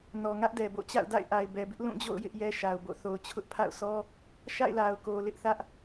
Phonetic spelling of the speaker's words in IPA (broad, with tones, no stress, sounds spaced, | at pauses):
n ɔ˨ ŋ ä˦ ʔ d ɛ˨ b o̰˦˨ t͡ɕ a̰˦˨ ʊ̯ d a̰˦˨ ɪ̯ ʔ a˨ ɪ̯ b ɛ˨ b ɪ˦ ʔ l ũ˦˨ d͡ʑ o̰˦˨ ʊ̯ j ɪ˦ ʔ j ɛ˦ ʃ a˨ ʊ̯ b o̰˦˨ θ o˨ ʊ̯ t͡ɕʰ ʊ˦ ʔ pʰ a̰˦˨ ʊ̯ s ɔ˦ | ʃ a̰˦˨ ɪ̯ l a˨ ʊ̯ k o˨ l ɪ˦ ʔ θ ä˦ ʔ